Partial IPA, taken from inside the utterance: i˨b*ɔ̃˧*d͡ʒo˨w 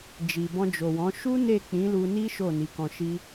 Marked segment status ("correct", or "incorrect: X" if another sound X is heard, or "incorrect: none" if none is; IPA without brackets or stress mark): correct